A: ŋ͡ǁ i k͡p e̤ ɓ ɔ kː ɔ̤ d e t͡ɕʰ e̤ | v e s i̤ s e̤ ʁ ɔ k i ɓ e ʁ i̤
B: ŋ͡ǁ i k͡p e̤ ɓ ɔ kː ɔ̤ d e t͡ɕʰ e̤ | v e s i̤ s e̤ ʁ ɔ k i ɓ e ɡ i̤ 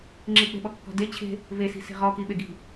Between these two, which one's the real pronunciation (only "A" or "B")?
B